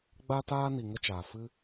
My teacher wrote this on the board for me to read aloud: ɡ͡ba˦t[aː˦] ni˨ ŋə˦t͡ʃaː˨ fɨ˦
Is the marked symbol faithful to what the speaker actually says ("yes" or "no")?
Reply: yes